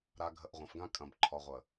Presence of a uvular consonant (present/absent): present